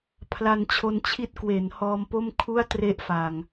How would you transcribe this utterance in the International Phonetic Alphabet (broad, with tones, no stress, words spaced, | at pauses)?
pʰla˧nt͡ɕʰo˧nt͡ɕʰi˦˥t̚kwe˩˦n hɔː˧mpo˥˩m kʰu˥˩a̯tre˦˥ʔfaː˨˩ŋ